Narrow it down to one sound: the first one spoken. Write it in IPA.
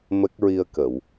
m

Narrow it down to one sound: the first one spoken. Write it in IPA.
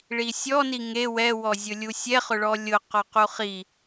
ɭ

